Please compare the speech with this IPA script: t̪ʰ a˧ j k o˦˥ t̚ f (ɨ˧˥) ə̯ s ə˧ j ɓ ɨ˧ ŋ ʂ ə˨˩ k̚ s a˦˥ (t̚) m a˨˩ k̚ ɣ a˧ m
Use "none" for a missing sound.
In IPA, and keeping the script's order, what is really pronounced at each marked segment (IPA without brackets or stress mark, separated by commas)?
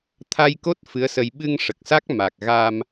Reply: ɨ˧˥, k̚